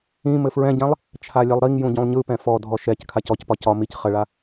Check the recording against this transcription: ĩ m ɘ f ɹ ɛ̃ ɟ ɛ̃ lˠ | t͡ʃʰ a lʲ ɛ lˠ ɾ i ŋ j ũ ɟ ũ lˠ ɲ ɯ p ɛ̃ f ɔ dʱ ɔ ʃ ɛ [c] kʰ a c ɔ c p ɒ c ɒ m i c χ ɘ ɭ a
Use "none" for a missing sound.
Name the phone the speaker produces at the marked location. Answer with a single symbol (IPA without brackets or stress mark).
c